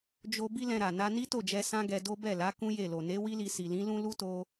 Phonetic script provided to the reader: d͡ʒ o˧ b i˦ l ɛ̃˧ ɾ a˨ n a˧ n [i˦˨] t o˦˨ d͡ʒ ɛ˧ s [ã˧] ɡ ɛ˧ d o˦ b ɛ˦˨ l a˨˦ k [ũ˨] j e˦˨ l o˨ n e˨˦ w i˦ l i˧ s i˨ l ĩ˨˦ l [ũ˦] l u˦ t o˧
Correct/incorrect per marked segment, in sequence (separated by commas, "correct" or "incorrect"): incorrect, incorrect, incorrect, correct